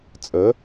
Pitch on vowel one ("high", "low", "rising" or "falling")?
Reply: rising